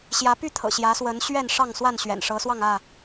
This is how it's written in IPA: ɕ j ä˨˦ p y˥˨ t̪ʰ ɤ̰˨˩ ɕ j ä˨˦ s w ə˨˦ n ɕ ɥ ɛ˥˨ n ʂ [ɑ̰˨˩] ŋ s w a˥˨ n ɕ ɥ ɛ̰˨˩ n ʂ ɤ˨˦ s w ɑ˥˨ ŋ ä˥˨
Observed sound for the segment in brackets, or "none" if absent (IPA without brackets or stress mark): ɑ˥˨